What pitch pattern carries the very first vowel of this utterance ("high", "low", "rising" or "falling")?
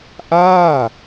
falling